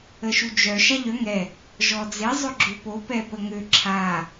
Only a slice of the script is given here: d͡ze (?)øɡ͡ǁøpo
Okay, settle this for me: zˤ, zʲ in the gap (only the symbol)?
zˤ